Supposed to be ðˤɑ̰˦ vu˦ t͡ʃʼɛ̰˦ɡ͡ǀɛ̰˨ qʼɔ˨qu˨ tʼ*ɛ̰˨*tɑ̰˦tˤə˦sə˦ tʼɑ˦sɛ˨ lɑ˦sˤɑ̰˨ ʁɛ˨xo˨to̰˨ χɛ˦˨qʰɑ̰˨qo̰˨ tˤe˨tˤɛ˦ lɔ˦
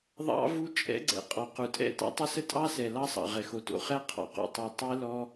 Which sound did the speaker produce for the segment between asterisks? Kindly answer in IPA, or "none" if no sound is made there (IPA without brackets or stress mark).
ɛ̰˦